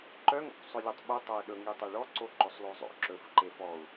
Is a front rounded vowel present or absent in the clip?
present